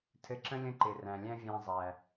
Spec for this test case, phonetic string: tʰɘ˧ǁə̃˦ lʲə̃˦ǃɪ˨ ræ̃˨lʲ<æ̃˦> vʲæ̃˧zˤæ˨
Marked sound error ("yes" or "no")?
no